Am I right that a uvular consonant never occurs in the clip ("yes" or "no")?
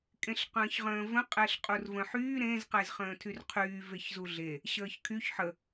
no